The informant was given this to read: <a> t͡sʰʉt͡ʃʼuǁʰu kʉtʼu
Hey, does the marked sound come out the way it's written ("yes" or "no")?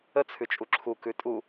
no